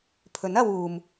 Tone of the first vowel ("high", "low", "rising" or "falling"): rising